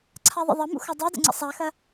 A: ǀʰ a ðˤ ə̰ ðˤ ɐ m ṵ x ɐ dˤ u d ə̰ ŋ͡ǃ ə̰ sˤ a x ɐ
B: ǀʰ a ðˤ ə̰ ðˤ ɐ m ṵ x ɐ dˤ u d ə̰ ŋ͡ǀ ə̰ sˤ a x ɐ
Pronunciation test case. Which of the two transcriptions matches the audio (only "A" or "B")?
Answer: B